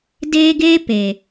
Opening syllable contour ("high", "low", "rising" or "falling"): high